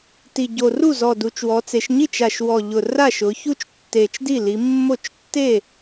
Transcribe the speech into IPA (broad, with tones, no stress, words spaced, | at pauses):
ti˨˩ɟo˨˩ru˥˩zɔ˨˩ du˩˧t͡ʃwɔ˩˧t͡se˩˧ʃ ɲi˥˩t͡ʃa˨˩ʃwɔ˨˩ ʎʊ˨˩ ra˥˩ʃʊ˩˧ çu˥˧t͡ʃtːe˨˩t͡ʃdi˥˩li˩˧ mːo˥˩t͡ʃ tːe˥˩